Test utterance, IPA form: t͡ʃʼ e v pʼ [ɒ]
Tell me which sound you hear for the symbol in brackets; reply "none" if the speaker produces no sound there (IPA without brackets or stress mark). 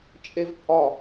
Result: ɒ